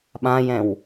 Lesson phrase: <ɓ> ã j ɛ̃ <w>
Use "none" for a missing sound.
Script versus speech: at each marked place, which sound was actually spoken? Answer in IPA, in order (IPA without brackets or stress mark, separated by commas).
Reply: ɓ, w